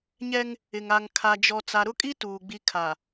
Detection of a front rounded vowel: absent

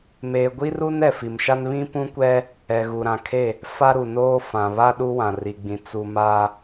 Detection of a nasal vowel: present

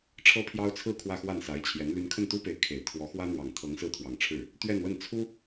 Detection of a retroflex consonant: present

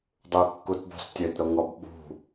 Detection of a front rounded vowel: present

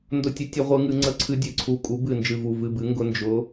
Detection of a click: present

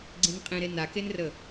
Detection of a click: present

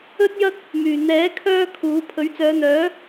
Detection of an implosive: absent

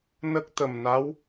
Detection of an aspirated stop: absent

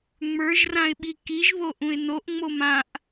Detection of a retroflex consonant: absent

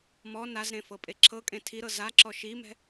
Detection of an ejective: present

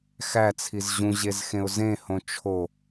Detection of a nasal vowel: present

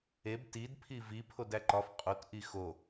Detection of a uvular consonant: present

